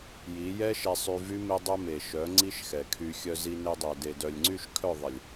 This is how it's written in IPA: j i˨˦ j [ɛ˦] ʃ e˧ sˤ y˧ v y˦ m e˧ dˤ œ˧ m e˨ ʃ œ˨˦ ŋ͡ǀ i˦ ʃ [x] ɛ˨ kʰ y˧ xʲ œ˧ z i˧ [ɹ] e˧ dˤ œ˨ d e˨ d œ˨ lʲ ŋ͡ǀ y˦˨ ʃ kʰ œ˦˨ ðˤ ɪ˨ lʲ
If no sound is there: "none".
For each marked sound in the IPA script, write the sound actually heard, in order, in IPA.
ɛ˦, x, n

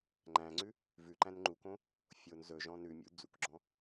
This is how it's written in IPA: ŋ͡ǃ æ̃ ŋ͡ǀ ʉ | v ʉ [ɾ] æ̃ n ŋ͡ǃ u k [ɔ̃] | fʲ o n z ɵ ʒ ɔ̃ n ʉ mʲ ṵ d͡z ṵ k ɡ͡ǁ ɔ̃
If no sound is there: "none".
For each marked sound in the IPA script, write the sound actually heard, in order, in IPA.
ǃ, õ

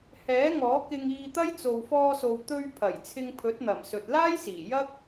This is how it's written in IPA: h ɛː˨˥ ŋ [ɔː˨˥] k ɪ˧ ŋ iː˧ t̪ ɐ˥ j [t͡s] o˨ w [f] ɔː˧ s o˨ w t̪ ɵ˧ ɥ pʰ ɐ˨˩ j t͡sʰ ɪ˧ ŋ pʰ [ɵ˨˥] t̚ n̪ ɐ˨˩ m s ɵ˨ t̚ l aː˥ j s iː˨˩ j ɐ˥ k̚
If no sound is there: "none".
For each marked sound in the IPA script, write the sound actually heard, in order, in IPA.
ɔː˨˥, t͡s, f, ɵ˨˥

